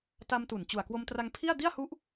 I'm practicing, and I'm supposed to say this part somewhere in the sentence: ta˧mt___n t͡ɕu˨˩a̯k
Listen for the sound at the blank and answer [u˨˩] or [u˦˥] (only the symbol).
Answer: u˨˩